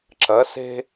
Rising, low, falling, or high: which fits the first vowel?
rising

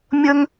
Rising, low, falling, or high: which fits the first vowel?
high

